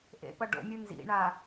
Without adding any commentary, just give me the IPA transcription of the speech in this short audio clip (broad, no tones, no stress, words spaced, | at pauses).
ʔḛpʌ ɖo̰mʲɯ nzḭɳa